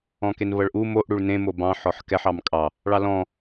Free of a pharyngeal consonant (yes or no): no